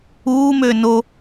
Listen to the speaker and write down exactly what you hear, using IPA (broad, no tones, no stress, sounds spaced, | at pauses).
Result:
uː m øː n o